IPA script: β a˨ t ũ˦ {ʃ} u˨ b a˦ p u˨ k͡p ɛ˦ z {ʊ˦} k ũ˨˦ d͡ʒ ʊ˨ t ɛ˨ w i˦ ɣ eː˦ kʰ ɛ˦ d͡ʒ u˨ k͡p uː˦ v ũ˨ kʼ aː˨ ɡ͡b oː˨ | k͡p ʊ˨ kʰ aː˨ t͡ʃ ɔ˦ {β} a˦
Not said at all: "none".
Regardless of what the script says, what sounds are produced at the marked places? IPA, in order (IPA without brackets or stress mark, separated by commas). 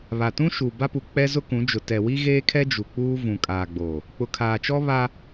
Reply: ʃ, ʊ˦, β